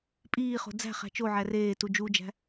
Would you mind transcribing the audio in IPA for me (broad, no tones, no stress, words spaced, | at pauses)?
pʼiːχo̤ d͡zæ̤ χæ̤t͡ʃoʕæ reːtu d͡ʒud͡ʒæ̤